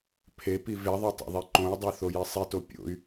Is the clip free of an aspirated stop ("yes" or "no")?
no